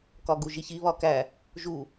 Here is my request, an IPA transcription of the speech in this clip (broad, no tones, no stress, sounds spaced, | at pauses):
k ɒ ɡ u ʒ i ç i β ɒ k æ | ʒ u